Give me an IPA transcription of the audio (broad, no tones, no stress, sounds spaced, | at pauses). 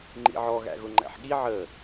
ŋ͡ǃ ḭ ʕ ɔ ɣ æ̰ ɣ ʊ ŋ͡ǃ æ̰ ħ ɠ i ʕ əː